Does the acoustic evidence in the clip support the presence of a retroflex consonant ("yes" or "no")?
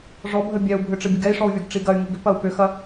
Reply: yes